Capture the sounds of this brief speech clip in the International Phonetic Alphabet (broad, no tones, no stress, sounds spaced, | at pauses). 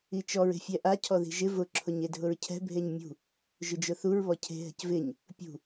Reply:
i t͡ʃ ɔ ɹ e̤ fʲ ɛ ʔ a cʰ ɔ ð i̤ ʒ ɪ v ʊ ǁʰ ʊ ɲ e dʱ ʊ ɹ cʰ ɛ̤ bʱ e ɲ mʲ ṳ | ʒ ʊ d͡ʒ ʊ θ u ɹ β ɔ cʰ e̤ ɦ ɛ̤ c v ɪ ɲ | pʲ ṳ